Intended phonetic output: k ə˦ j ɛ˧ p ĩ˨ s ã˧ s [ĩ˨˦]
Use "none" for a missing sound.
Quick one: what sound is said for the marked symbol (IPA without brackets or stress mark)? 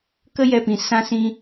ĩ˧